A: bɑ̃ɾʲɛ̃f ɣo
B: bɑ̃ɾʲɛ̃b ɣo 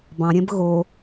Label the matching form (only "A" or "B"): B